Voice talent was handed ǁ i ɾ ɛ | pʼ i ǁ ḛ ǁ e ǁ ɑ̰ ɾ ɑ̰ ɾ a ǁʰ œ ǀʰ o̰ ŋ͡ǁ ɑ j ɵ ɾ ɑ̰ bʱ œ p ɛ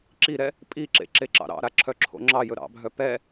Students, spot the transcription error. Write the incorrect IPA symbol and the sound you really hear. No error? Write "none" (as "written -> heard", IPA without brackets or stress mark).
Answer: ǀʰ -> ǁʰ